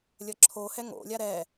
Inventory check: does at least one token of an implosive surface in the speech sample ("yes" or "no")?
no